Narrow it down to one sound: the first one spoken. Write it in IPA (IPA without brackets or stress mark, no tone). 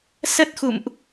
s